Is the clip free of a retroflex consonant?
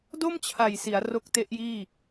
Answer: yes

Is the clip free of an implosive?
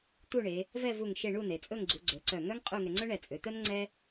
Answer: yes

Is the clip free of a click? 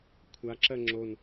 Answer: no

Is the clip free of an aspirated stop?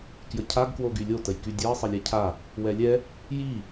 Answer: no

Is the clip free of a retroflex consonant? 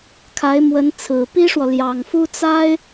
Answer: no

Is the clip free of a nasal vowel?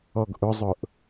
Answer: yes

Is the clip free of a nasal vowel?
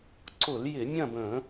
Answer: no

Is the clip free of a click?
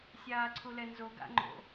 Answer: no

